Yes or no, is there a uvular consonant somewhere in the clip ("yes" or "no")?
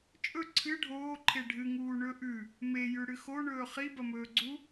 yes